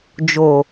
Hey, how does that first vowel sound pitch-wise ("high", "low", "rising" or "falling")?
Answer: low